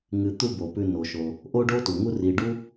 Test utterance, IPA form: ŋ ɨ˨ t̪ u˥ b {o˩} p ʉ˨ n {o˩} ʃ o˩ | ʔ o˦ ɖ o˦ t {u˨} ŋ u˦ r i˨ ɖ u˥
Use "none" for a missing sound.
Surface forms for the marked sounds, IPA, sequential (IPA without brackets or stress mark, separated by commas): o˩, o˩, u˩